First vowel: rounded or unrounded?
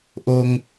rounded